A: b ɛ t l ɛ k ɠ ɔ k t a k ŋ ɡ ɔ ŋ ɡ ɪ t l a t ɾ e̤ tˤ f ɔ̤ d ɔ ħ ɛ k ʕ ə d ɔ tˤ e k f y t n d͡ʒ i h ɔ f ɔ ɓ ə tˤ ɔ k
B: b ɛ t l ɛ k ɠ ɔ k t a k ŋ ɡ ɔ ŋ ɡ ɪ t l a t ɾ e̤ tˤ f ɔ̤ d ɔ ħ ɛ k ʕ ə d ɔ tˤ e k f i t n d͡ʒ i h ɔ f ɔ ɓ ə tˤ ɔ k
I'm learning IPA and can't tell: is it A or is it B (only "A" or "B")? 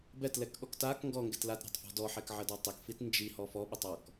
B